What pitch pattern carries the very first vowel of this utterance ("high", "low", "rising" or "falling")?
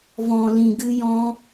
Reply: low